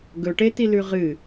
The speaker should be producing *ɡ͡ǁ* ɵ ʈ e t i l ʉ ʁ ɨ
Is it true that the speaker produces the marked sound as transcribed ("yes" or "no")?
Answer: no